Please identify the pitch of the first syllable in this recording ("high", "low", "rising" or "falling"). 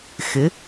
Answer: rising